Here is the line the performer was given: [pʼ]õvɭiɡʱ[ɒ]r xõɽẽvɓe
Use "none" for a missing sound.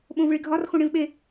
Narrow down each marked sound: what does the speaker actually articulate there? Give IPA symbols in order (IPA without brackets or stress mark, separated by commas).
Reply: ɓ, ɒ